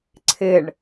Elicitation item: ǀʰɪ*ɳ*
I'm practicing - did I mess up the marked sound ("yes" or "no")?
no